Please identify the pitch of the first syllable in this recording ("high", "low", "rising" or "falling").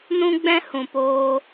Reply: high